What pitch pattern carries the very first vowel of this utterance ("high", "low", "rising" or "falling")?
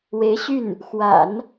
rising